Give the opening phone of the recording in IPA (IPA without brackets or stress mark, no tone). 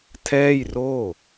tʰ